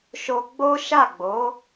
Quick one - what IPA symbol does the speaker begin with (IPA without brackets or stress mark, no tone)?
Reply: ʃ